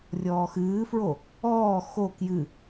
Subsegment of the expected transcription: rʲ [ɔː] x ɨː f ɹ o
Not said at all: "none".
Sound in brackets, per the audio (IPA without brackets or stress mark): ɔː